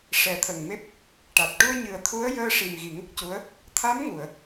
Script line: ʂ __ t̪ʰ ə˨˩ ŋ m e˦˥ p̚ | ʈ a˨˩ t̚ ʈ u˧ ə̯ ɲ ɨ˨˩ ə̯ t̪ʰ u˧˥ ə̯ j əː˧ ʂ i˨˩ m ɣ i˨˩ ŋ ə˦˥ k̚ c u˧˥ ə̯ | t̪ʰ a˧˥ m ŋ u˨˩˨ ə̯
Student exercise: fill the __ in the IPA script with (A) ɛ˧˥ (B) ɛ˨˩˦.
B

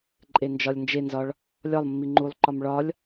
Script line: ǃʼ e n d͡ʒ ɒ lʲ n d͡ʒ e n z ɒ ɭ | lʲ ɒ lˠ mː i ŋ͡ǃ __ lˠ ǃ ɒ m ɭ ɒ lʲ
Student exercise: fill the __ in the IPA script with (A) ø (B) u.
B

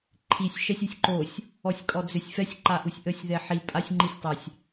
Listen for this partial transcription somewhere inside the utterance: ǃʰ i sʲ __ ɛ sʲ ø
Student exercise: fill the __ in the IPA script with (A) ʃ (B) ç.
A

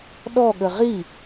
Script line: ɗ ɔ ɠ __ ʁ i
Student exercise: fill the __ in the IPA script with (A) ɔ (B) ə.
B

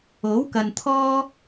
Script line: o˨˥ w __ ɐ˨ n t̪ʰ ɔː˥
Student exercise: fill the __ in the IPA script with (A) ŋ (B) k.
B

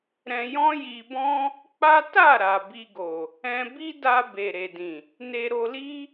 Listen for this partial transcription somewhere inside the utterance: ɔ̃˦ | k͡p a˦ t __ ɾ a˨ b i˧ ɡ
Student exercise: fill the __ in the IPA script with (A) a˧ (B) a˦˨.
B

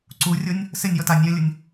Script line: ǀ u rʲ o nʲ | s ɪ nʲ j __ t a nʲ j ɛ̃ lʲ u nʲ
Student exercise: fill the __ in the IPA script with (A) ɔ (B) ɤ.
A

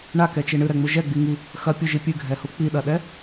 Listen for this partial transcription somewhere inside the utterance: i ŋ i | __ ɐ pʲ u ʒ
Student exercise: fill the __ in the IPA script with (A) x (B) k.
A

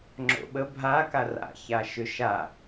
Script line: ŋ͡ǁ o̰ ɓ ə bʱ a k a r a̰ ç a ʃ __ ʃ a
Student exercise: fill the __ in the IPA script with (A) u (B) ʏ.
B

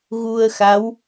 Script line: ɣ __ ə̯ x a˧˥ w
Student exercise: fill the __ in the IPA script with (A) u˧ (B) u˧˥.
A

